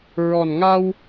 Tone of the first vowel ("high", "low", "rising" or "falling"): low